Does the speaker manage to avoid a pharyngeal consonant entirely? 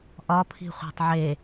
no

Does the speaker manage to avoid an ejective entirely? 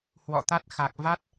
yes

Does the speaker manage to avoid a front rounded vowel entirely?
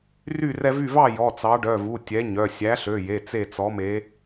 no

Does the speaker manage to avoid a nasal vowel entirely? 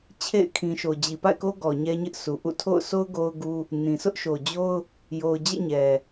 no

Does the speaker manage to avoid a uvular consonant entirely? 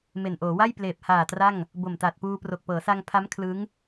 yes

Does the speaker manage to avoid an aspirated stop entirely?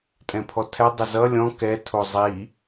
no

